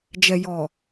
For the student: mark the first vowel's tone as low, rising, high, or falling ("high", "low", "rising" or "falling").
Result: low